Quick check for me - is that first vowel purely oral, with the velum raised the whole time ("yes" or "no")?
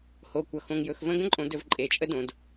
yes